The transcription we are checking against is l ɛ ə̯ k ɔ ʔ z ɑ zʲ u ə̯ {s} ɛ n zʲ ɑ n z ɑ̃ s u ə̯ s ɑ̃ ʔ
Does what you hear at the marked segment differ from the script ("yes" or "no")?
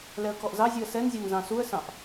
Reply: no